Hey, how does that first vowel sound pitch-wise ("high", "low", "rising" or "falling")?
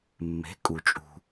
rising